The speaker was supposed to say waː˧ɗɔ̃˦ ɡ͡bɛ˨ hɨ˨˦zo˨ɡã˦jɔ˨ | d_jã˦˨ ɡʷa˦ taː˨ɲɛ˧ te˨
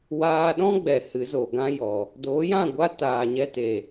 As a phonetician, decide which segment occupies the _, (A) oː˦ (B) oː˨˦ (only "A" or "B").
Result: B